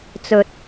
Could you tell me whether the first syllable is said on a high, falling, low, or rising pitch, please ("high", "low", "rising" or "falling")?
low